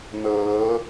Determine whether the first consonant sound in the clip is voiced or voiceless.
voiced